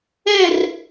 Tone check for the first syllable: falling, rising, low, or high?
falling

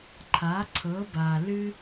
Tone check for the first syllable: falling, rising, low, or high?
rising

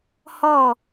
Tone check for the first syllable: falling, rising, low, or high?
falling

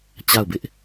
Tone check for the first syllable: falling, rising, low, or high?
falling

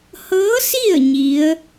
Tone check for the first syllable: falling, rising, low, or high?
rising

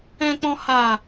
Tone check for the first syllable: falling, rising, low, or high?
low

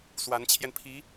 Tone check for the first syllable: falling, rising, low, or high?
rising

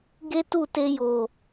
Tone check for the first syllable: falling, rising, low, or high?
high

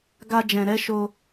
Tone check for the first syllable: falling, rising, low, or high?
high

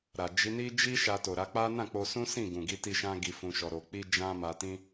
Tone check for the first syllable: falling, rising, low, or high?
low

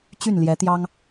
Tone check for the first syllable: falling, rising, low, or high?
falling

